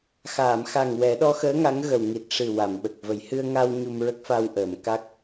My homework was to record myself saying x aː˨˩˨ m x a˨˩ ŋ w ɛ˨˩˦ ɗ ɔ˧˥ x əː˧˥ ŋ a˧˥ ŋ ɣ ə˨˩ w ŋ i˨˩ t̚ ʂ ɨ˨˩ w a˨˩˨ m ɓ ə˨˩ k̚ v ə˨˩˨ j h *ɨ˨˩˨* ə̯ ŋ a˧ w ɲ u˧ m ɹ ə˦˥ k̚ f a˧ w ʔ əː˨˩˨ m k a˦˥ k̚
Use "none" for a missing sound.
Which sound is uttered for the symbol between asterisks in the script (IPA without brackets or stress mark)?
ɨ˧